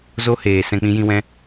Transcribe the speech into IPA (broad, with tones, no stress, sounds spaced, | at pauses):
z o˦ h eː˨ s ɛ̃˧ k͡p ĩ˧ j ĩ˧ w ɛ̃˧